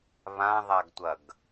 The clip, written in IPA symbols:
β ã ðˤ a ɡ tʷ ɐ ɡ

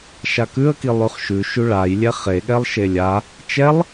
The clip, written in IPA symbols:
ʃ a k ʉ ə̯ k i lˠ ʉ χ ʃ ʉ ʃ ʉ ɭ a j lʲ ɛ χ e ɠ ɛ lˠ ʃ e lʲ a | t͡ʃ ɛ lˠ

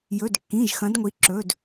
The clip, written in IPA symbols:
j ɵ˩˧˩ d kː ĩ˩˧˩ ʒ x ɐ̃˩˧ d ŋʷ i˩˧ ǁ ɵ˩˧˩ d

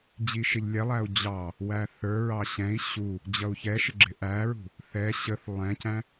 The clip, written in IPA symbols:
d͡ʑ i ʃ ɪ ʎ lʲ ɛ lˠ æ u̯ d͡ʑ ɑ | w æ θ ə˞ ɹ ɑ ɕ ɛ̃ i̯ ɕ u | d͡ʑ ʌ u̯ ç ɛ ʃ ɪ ɡ͡ǁ ɪ ʔ æ ɹ ṳ | θ ɛ ɕ ə θ lˠ ɛ̃ c æ̃

